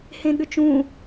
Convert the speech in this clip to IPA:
hẽɠʏt͡ʃũ

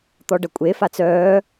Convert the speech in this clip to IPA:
t̪ɔɖɐkʷʼefa t͡sœː

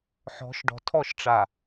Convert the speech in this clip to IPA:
ħɔ̤˨˦ʃ ɖɔ̤˨tʰɔ˦˨ʃʈ͡ʂa˨

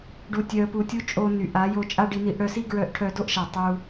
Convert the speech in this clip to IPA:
ɖu˧tʲœ˧ə̯pu˧tʲu˦ t͡ʃʼo˧ny˨ ʔa˨˦jo˧ t͡ʃʼa˦ɖi˧ni˧ʔ ɽœ˧si˦ ɡɹœ˧ʔʈʰœ˧do˦ʔʃa˨ tˤu˧

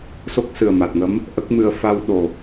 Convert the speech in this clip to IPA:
so˦˥k̚sɨ˨˩ə̯ma˨˩t̚ŋə˧˥m | ʔə˦˥k̚mɨ˧ə̯ fa˧wɗo˨˩

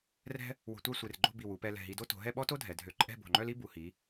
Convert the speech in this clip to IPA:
rɛ̤˥ | wo̤˧tʷa˥˧sʷe˧˩rɡ͡ǃo̤˥˧ bi˧˩wu˩˧pɛ˧ lɛ̤˧˩ɦi˧do˥ to̤˩˧ɦɛ˥˧ɓɔ˥to˥ dʱɛ˩˧dʱø˧˩ ǃʼɛ̤˥˧bo̤˧˩ŋ͡ǃœ˥l i˥bu˩˧hi˩˧

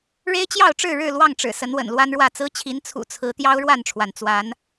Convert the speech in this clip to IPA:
ɻe˦ɪ̯t͡ɕjɑ˥˨ʊ̯ ʈ͡ʂɻ̩˥˨ɻɻ̩˥˨ lwɑ˥˨ŋʈ͡ʂɻ̩˨˩ sə˨˦nwə̰˨˩nlwa˦nɻwä˥˨ t͡sɹ̩˦t͡ɕʰi˨˦n t͡sʰṵ˨˩t͡sʰɹ̩˨˦ t̪jɑ˦ʊ̯ɻwa˥˨nʈ͡ʂʰwa˩n t͡swa˨˦n

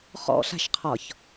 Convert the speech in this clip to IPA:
χɔ̰ɬa̤ʃqʰɒç

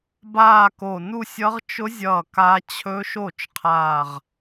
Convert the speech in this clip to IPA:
baː˥˧ko˧˩ nu˥˧sʲʌ˦˥ʁ t͡ʃʊ˦˥zʲʌː˧˩ ka˦˥ t͡ɕʰɵ˦˥ʃo˥˩t͡ʃqʰaː˧˩ʁ

